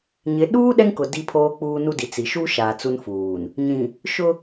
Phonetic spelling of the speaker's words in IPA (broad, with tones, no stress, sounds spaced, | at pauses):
ɲ ɪ˨˦ ɗ uː˦ ɗ ɛ˦ ŋ k ʊ˨ d i˦ pʰ oː˦ k͡p uː˦ n u˦ d i˨ t͡s i˨ ʃ u˦ ʃ aː˨ t͡s u˦ n f uː˨ n | ɲ ĩ˨ | ʃ ʊ˦